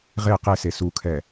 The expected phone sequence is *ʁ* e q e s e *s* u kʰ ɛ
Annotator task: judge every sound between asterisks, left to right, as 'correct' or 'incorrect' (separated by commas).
correct, correct